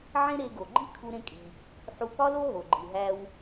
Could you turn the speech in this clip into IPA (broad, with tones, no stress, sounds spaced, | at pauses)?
ʕ ẽ˥ ɾ e˧ ɡ o˩ ɡ͡ǃ i˥ kʰ u˧ ɾ ẽ˧ kʼ i˩ | ħ u˧ k ɒ˥ l o˥ ɦ o˩ ɡ͡ǃ i˩ ɦ æ˧ w